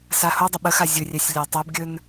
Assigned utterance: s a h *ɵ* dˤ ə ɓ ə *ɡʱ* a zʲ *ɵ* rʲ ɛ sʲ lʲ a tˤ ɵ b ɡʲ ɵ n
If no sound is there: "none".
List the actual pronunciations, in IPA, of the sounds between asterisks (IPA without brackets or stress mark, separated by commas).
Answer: o, x, ɵ